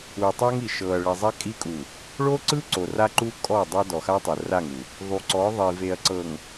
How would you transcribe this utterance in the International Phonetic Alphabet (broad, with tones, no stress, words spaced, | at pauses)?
u˨tˤa˦ŋi˨ ʃɤ˨ɐ̯ɭi˨zˤɛ˦ kʼi˦kʼu˨ | ɭo˦ǀɯ˦ ǀo˨ra˦ ǃu˦ kʼɔ˦˨dˤa˦ dɔ˨xa˦tˤɛ˨ ra˦˨ŋu˨ | ðˤu˨ǀɔ˨˦ ðˤi˨ve˨ɐ̯ ǀɤ˨ŋ